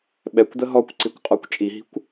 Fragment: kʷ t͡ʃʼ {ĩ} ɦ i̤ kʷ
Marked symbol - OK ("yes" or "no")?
no